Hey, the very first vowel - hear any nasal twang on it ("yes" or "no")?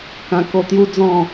yes